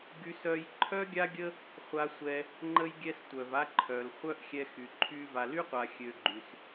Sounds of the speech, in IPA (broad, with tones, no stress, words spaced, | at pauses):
ɡy˥sœ˥j ǃʰœ˥ɡʲa˥ɡʲə˥ | χʷa˥sʷɛ˥ | ŋ͡ǃə˥jɡʲɛ˥stʷœ˧va˥ ǃʰœ˧lχʷœ˥ʔ xʲɛ˥xy˧ǃʰy˥ va˧ly˥qʷa˧ xʲø˧ɡ͡ǃy˧s